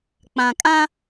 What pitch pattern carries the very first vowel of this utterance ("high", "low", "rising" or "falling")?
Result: low